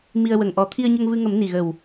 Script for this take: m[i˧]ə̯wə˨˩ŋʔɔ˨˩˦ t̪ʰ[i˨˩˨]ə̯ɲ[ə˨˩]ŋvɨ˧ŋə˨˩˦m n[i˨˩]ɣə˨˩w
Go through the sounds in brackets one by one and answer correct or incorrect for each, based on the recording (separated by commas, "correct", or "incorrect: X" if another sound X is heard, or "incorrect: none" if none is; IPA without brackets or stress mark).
correct, incorrect: i˧, incorrect: ə˧, correct